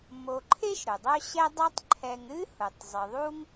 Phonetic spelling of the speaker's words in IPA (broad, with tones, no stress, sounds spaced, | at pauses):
m o˨ ǃʰ e˥ ʃ ɾ ʊ˩ dˤ œ˦ ɕ ɛ˦ dˤ ɛ˦ tˤ ǃʰ ɛ˨ ŋ ɾ ɨ˥ h ʊ˩ tˤ zˤ ɨ˩ ðˤ u˥ ŋ